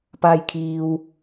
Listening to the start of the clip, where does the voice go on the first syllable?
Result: low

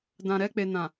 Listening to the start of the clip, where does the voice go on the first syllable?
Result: low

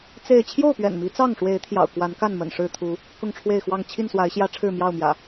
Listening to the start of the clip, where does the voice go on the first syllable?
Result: falling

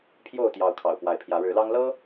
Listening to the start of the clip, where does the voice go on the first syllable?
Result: falling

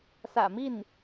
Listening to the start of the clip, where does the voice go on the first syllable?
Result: low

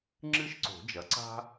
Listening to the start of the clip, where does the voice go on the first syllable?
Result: high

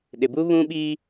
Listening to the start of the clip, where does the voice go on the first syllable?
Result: low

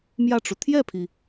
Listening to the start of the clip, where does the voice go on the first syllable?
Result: falling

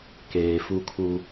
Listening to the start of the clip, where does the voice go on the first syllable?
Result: low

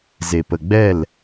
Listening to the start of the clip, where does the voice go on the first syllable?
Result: low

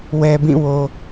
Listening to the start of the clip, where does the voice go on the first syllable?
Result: low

